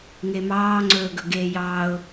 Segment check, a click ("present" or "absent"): present